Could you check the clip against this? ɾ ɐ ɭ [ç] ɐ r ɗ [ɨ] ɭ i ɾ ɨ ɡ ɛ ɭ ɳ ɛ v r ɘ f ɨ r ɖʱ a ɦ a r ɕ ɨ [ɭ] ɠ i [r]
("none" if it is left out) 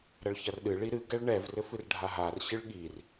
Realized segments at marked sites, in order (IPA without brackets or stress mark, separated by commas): ç, ɨ, ɭ, r